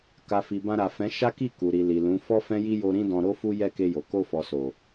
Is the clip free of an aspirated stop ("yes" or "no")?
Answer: yes